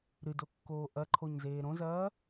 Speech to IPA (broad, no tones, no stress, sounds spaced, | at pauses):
ɾ ɨ d o kː oː ʔ ɐ ǃʰ o ɲ z eː ɾ õ z ɐː